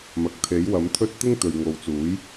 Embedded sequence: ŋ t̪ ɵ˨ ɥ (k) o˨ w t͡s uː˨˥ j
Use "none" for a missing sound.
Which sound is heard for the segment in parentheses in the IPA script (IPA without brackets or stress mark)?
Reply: ŋ